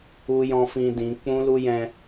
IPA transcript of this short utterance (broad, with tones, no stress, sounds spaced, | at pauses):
u˦ j ɔ̃˦ f ĩ˧ d ĩ˨˦ k͡p ũ˦ l u˦ j ɛ̃˧